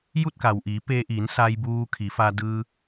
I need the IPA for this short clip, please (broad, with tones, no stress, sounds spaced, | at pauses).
j u˥˨ t̚ k a˩ w ʔ iː˩˧ p eː˧ ʔ iː˩˧ n s a˧ j b uː˧ kʰ i˩˧ f a˧ d ɯː˧